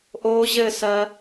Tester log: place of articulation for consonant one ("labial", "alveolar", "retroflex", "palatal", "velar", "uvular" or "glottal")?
glottal